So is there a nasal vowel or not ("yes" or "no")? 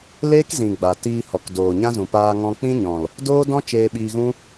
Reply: yes